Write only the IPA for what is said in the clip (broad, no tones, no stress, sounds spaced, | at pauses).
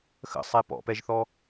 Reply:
x ə̰ sˤ e p ɔ̰ p ɛ ʒ θ ɔ